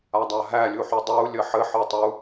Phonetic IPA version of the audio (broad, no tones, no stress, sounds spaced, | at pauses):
a dˤ a ɦ æ lʲ u ħ u dˤ u lʲ ə ħ ɘ ħ ɤ tˤ u